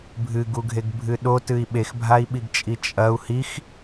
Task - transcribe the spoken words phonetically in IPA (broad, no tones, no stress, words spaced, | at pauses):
bʱɨɡuɡʱeɡbʱɨ ɗotɨi̯ ɓexbʱai̯ɓiɡt͡ʃʼi t͡ʃʼɐu̯ hix